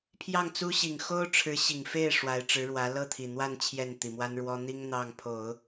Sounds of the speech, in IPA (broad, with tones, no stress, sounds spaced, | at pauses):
pʰ j ɑ˥˩ ŋ t͡s u˥ ɕ i˨˩ ŋ x o˥ ʊ̯ ʈ͡ʂʰ ɻ̩˧˥ ɕ i˨˩ ŋ f e˥˩ ɪ̯ ʂ w a˧˥ ɪ̯ ʈ͡ʂ ɻ̩˧˥ ɻ w ä˧˥ l ɤ˥˩ t̪ʰ i˨˩ n̪ w a˥˧ n t͡ɕʰ j ɛ˥˩ n t̪ i˨˩ m w a˥ n ɻ w ɔ˥ n̪ i˥ ŋ n̪ ɑ˥˩ ŋ pʰ o˨˩˦ ʊ̯